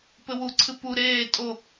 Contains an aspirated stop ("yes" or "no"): yes